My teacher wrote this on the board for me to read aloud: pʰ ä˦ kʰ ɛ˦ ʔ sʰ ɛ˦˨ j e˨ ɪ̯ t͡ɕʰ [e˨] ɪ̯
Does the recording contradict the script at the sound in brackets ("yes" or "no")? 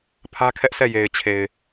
no